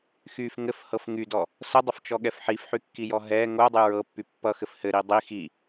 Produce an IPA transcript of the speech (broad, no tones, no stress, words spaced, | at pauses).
xyf ŋɘfhɤf ŋydɔ | sədˤəft͡ʃɔɠɛf ħifħykːijɔ ɦɛ ŋodˤy ɹɤpːy pːʌxɘf hɘɾi dˤi xi